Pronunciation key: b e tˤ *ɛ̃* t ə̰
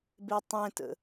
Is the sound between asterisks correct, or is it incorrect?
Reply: correct